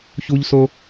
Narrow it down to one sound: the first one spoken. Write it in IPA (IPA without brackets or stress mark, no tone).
ç